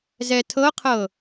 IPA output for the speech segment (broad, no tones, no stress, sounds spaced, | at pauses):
z ɛ tʰ ɤ qʰ ɤ